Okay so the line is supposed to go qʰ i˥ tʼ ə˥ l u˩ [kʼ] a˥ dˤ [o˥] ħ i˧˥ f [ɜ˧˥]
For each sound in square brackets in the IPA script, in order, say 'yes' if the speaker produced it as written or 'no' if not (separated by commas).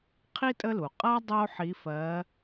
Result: no, yes, yes